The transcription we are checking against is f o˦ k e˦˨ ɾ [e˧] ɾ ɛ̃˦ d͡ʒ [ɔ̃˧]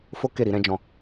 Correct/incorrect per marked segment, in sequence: incorrect: i˧, correct

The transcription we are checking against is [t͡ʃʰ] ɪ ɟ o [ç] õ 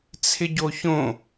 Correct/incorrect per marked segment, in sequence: incorrect: t͡sʰ, correct

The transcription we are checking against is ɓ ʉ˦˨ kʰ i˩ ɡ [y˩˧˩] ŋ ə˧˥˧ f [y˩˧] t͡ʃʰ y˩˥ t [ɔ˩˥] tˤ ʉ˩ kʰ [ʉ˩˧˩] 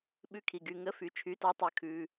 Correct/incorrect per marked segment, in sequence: correct, correct, correct, correct

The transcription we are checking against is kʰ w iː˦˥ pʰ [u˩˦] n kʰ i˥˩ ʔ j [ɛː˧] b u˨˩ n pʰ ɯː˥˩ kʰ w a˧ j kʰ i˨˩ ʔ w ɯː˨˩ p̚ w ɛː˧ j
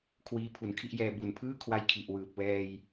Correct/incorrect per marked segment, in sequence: correct, correct

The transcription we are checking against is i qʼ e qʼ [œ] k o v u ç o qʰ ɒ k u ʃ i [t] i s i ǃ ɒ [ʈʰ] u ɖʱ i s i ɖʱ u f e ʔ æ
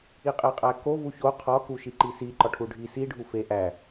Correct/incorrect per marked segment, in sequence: incorrect: æ, incorrect: ǃ, correct

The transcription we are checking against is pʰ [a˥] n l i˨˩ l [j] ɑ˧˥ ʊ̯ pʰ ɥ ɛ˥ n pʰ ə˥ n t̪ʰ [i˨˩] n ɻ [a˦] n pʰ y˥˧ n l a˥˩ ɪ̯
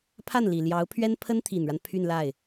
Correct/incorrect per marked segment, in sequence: incorrect: a˥˩, correct, correct, correct

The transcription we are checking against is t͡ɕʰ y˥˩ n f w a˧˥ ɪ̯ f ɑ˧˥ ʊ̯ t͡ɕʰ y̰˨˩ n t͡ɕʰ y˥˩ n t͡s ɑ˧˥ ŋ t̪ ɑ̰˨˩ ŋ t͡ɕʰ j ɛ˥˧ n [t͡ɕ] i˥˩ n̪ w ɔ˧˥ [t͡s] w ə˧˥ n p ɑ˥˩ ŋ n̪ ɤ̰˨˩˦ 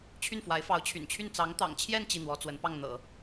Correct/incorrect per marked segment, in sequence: correct, correct

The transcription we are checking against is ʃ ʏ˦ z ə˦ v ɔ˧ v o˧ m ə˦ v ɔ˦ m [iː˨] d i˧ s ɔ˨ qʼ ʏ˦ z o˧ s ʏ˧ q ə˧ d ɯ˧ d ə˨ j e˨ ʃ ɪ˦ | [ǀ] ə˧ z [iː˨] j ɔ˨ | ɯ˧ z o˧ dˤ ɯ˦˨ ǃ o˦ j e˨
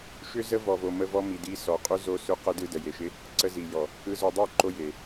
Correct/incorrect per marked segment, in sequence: incorrect: i˨, correct, incorrect: i˨

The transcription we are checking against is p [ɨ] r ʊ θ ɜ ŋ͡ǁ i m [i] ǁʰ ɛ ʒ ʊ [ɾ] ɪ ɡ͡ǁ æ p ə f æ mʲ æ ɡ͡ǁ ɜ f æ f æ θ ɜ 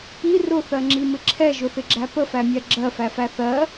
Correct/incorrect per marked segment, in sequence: incorrect: i, incorrect: ɪ, incorrect: θ

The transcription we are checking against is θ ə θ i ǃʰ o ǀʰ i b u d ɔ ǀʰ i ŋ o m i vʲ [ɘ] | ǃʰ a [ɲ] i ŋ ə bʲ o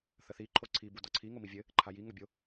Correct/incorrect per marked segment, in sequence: correct, incorrect: j

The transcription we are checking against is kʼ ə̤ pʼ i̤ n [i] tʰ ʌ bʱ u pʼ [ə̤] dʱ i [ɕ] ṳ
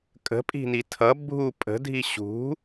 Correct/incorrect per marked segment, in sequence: correct, correct, correct

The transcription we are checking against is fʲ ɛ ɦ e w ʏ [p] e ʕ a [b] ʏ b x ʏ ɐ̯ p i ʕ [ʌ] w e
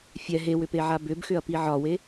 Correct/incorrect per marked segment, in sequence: correct, correct, incorrect: ɒ

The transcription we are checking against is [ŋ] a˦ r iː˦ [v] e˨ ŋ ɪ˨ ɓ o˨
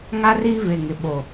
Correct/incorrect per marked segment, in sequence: correct, correct

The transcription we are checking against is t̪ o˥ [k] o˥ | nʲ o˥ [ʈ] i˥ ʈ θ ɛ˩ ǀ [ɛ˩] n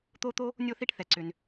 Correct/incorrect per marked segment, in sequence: incorrect: t̪, incorrect: θ, incorrect: ʏ˩

